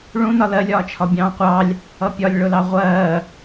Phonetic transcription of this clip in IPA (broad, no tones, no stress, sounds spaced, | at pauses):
ɭ ũ n ɒ l ɜ lʲ ɒː t͡ʃʰ ɒ bʲ ɑ̃ː qʷ ɑ lʲ | ʌ pʲ ɒ lʲ ɭ ʊ l ɑ ʁʷ ɜː